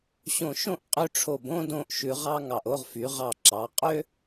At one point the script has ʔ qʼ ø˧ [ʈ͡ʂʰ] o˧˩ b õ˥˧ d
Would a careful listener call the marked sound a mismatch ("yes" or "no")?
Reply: no